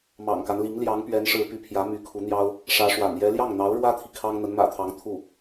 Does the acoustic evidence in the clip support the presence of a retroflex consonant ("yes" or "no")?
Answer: yes